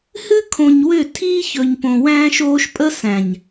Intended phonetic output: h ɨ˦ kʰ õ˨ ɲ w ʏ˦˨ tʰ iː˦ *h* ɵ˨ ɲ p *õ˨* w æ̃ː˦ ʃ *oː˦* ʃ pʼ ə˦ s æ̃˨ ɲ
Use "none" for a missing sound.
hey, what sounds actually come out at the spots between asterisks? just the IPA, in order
ç, õ˨, oː˦

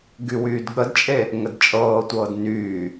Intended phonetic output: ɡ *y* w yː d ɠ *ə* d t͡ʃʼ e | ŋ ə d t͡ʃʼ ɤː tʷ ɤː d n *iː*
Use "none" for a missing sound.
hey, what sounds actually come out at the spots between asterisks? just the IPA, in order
y, ə, yː

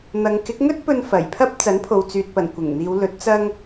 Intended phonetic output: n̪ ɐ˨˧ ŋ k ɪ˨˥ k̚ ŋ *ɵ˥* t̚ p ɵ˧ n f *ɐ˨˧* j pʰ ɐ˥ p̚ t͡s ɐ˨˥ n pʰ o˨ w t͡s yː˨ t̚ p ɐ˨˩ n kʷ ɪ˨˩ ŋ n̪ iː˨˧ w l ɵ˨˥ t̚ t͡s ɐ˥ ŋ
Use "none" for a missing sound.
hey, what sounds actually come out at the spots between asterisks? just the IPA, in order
ɵ˥, ɐ˨˩

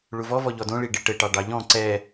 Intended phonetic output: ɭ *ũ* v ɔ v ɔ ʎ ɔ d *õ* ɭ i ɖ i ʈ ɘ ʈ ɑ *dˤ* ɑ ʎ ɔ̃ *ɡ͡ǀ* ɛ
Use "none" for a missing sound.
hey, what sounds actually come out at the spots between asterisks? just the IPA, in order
u, õ, ɖ, ǀ

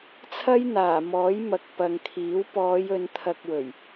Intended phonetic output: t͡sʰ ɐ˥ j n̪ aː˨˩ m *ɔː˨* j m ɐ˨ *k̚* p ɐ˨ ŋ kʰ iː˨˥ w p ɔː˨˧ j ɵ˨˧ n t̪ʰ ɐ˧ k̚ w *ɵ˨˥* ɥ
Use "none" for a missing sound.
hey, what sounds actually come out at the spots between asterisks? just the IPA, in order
ɔː˨˥, k̚, ɵ˨˩

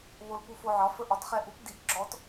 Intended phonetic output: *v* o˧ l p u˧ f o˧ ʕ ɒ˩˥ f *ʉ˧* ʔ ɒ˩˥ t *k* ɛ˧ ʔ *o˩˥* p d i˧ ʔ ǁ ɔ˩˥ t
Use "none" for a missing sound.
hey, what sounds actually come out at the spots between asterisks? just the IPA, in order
β, ə˧, χ, u˩˥

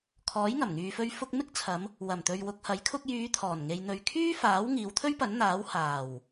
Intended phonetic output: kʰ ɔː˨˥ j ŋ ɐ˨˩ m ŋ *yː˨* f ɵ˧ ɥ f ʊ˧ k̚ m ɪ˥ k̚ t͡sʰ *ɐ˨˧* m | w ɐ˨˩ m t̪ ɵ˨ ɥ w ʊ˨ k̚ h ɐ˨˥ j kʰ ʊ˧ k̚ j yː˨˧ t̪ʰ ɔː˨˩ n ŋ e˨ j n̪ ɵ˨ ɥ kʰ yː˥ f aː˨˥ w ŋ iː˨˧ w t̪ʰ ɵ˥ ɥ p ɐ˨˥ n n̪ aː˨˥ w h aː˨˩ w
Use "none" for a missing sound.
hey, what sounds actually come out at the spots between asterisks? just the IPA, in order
yː˨, ɐ˨˧

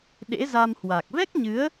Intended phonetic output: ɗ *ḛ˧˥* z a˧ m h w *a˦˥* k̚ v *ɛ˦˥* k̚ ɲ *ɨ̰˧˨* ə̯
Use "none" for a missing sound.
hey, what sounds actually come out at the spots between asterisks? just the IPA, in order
ḛ˧˥, a˨˩, ɛ˦˥, ɨ˨˦

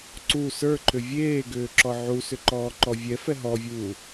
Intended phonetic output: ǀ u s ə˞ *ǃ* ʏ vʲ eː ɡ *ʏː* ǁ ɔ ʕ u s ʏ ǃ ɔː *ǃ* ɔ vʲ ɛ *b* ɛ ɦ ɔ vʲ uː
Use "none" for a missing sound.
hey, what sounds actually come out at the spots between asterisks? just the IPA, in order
ǃ, ʏː, ǃ, f

